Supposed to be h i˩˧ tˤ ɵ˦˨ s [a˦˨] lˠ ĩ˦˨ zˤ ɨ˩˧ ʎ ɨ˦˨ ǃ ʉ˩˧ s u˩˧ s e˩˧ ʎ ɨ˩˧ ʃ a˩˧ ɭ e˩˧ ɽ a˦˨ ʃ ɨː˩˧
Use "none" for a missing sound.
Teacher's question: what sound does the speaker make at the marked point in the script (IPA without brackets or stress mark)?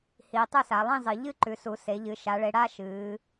a˩˧